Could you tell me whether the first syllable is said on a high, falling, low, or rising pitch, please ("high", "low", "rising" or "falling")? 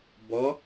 rising